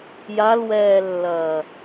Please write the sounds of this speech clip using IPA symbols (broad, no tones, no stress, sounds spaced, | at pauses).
j a l w ɛː lː ɐː